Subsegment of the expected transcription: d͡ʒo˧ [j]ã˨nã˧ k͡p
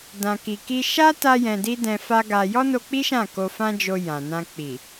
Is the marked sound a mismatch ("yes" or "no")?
no